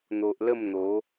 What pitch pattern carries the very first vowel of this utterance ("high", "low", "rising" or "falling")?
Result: low